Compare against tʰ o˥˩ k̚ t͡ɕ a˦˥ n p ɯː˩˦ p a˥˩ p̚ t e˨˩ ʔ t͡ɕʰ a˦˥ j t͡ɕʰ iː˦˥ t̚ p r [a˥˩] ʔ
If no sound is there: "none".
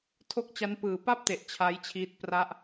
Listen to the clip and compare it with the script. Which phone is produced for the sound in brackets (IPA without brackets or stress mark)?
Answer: a˥˩